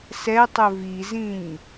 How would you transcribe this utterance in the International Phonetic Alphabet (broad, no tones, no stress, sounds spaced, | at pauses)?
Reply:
s ɛ tˤ ɵ v i z ĩ ɲ